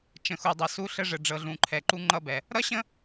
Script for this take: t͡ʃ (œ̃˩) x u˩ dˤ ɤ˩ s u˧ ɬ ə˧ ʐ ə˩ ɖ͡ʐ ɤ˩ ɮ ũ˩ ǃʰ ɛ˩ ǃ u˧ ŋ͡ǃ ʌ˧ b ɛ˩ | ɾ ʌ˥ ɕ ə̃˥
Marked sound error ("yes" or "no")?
yes